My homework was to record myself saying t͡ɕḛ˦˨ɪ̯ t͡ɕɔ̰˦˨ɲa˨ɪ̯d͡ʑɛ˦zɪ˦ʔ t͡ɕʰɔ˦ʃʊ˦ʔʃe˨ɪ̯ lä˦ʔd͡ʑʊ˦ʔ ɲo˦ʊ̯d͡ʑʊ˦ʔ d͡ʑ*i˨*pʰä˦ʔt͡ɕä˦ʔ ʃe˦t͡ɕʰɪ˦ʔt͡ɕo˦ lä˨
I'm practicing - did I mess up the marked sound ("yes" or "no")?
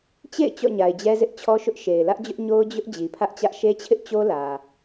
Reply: no